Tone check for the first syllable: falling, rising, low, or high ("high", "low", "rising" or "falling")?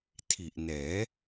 low